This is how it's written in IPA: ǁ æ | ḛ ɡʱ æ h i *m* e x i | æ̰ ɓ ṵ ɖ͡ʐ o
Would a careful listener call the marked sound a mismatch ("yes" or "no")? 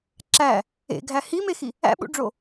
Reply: no